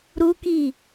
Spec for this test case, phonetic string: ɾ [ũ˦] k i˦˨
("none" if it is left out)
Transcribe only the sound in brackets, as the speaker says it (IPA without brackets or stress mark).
u˦